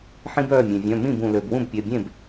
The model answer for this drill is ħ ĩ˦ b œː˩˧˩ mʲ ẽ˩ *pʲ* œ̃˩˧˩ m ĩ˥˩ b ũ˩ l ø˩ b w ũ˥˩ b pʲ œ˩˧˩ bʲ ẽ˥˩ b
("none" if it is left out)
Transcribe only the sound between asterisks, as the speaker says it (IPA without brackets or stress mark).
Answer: vʲ